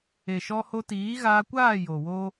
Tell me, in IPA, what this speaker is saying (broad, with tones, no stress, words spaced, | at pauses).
e˨ʃɔ˧ho˧ tiː˨˦ɣaː˧kʷaː˦˨ jo˨wo˦